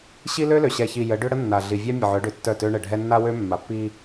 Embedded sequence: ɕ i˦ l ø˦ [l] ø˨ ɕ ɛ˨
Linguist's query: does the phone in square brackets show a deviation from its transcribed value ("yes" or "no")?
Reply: no